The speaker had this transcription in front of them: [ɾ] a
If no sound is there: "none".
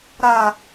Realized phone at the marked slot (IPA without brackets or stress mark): ɾ